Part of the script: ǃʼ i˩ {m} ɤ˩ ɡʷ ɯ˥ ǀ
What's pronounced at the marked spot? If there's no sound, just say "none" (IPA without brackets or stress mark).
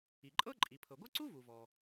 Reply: pʰ